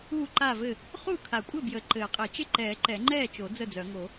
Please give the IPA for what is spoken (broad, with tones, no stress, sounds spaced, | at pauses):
u˥˩ ǃ a˥˩ v ɘ˥˩ | χ u˥˩ kʰ a˨˩˦ kʷʼ ɘ˥˩ b j ə˨˩˦ ǃ ɘː˨˩˦ qʼ ɘ˨˩˦ t͡ʃ ɪ˥˩ ǃ ɛː˨˩˦ ǃ ɛ˨˩˦ ŋ͡ǃ ɛː˥˩ t͡ʃ o˨˩˦ d͡z ə˥˩ d͡z œ˨˩˦ ŋ o˨˩˦